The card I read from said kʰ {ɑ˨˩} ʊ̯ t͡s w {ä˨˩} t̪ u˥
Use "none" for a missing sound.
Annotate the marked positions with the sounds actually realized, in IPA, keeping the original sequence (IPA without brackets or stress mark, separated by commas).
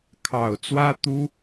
ɑ˨˩, ä˥